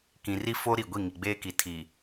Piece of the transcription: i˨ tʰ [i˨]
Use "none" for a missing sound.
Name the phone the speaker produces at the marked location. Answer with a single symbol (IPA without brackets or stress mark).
i˨